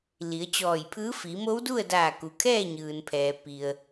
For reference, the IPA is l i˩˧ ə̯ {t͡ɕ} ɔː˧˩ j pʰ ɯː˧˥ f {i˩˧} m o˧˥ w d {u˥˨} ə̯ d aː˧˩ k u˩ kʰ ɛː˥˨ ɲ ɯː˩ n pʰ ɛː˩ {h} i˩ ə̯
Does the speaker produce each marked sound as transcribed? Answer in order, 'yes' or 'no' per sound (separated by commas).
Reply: yes, yes, yes, no